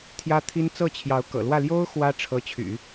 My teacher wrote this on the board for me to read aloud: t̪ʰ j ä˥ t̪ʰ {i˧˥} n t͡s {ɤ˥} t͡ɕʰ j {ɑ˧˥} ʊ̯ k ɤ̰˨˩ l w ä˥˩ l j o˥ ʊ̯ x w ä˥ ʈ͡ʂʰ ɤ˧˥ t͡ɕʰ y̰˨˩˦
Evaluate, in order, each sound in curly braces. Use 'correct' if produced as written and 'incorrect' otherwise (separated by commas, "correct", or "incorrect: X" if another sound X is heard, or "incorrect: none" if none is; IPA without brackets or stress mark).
incorrect: i˥, incorrect: ɤ˥˩, correct